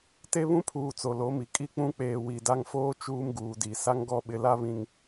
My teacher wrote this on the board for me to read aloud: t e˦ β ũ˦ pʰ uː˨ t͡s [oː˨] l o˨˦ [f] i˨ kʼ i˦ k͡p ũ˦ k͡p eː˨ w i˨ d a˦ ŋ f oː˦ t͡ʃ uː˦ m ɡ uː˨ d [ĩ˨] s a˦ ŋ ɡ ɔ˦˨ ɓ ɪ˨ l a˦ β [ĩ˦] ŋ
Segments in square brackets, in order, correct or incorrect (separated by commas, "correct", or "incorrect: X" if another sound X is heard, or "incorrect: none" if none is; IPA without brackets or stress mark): incorrect: o˨, incorrect: m, incorrect: i˨, incorrect: ĩ˨